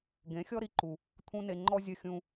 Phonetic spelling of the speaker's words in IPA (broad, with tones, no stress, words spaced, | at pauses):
ɡẽ˨˦xʲɔ˦ɾi˧ǃu˨ | t̪ʰũ˦ne˧ ŋ͡ǃɔ˦zʲə˦˨xʲũ˧